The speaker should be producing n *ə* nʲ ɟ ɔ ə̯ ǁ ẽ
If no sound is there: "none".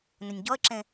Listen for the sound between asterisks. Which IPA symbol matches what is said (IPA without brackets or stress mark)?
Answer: ə